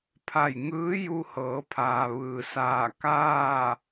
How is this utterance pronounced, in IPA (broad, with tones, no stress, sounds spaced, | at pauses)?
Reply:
pʰ a˧˩ j ŋ ɯː˧˥ j u˧ h ɤː˩˧ pʰ aː˩ ʋ ɯː˩ s aː˧˩ k aː˥˨